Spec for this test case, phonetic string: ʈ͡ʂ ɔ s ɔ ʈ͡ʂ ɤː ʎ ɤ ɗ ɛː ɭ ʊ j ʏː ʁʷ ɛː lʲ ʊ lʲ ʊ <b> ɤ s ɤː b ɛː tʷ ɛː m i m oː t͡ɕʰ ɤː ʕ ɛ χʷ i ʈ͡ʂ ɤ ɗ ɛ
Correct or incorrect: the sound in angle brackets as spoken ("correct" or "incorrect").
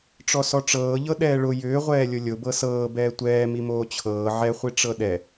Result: correct